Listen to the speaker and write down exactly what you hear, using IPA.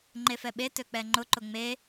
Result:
ŋ͡ǃ e f ɛ ɓ e t ø k͡p ɛ ŋ͡ǃ ʊ ǃ ʊ ŋ͡m e

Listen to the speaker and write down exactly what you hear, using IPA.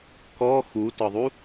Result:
k ɔ x u t ɒ ðˤ u

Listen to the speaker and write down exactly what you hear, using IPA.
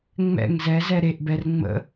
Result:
ŋ͡m ɛ̰ ŋ z ɛ z ɛ ɾ e ʔ b ɛ r ŋ͡m ə̰

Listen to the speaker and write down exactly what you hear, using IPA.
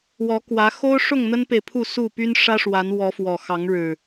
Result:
w ɔ˨˦ k w ä˨˦ x o˦ ʊ̯ ʂ ʊ˥˨ ŋ n̪ ə˦ n p e˨ ɪ̯ pʰ u˥˨ s u˥˨ p y˦ n ʂ ä˦ ʂ w a˨˦ n w ɔ˨˦ f w ɔ˨˩ x ɑ˨˦ ŋ ɻ ɻ̩˨˩

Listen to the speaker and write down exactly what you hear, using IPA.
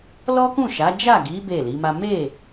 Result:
l ɔ˦ k ũ˦˨ ʃ a˨˦ d͡ʒ a˦˨ ɡ i˨˦ b e˦˨ l i˨˦ m a˦ m e˦˨

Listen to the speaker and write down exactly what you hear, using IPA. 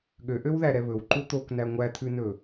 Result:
ɠ ø ʔ ø w ð æ ɾ ɛ β ɵ w ǃ u t̪ o k n æ ŋʷ æ t̪ʰ ʉ n ɵ

